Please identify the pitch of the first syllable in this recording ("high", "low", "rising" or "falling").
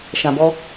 low